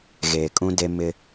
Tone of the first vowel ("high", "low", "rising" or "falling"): low